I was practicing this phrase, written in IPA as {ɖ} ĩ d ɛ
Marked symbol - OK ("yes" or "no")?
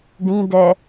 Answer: yes